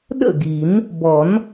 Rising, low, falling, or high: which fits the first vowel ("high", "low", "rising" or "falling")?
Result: falling